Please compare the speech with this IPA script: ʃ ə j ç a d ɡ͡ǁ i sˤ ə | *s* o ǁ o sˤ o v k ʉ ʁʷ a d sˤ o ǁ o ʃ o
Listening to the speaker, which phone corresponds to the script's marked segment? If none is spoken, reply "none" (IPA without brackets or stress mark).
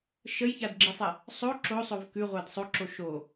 sˤ